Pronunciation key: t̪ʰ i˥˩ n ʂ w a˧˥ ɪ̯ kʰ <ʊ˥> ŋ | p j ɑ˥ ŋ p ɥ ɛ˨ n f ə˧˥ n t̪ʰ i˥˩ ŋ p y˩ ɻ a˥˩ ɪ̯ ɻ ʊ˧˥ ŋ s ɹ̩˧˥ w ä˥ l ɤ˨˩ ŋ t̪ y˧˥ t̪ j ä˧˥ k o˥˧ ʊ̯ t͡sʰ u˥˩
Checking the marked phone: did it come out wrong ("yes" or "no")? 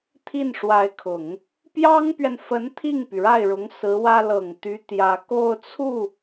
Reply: yes